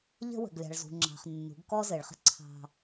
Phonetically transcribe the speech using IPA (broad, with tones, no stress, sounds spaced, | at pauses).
ʎ ə̤˦ w ə̤˨ ɡ lʲ ɑ̤˨ ɭ z ṳ˨ ŋ͡ǁ ɑ̤˨ χ nː ṳ˨˦ ɡ k ɔ˦ z ɘ˨ ɭ χ ə̤˦ ǀʰ ɑ̤˦